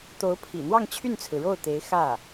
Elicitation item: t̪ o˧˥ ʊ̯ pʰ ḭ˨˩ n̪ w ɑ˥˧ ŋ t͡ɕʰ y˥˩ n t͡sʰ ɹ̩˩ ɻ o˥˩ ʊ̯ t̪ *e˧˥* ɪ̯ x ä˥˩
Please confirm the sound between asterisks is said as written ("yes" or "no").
yes